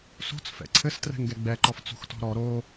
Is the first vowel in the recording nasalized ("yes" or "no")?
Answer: no